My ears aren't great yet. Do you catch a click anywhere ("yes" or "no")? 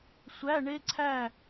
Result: yes